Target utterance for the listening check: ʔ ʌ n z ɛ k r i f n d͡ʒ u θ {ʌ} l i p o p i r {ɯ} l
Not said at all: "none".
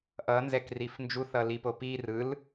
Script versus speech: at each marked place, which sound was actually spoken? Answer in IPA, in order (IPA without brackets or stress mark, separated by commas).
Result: ʌ, ɯ